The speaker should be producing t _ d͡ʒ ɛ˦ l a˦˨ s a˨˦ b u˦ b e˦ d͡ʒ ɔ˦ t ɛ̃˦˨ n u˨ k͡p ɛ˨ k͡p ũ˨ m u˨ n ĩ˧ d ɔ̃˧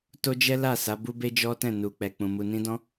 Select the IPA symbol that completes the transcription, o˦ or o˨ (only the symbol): o˦